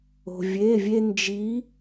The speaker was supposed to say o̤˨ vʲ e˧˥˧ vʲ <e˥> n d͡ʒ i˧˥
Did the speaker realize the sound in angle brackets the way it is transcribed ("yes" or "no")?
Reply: yes